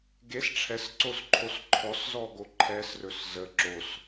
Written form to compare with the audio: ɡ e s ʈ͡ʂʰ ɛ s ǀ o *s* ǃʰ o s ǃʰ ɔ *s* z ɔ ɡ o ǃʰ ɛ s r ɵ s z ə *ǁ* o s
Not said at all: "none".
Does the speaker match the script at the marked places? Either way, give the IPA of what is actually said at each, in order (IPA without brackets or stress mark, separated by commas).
s, s, ǁ